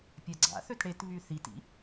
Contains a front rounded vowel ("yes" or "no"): yes